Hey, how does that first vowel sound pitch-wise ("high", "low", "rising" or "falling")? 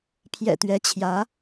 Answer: low